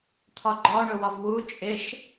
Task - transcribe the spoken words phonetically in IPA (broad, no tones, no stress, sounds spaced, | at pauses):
t̪ʰ ɒ ɡ͡ǃ ɒ ɳ ʊ w ɒ v w u t͡ʃʼ ɪ ʃ